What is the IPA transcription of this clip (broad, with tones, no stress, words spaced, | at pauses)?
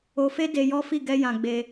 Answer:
o˧fe˦de˧ jɔ˦fi˦˨ ɡɛ˧jã˨ ɡ͡be˧